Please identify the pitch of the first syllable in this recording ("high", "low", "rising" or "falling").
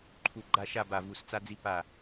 low